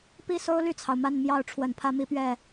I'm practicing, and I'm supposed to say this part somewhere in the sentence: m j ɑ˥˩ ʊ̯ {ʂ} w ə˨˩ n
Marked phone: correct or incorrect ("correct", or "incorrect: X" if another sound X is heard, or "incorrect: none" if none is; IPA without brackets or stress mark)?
incorrect: ʈ͡ʂʰ